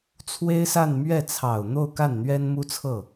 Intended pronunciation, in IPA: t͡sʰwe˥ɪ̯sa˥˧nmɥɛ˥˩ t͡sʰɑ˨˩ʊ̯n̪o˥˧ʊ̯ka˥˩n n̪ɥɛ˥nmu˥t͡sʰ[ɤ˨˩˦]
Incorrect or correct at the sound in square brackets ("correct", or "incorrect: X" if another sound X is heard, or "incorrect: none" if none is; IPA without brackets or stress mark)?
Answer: incorrect: ɤ˥˩